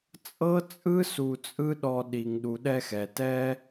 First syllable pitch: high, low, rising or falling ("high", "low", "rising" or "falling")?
high